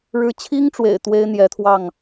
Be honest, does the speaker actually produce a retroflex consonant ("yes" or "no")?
yes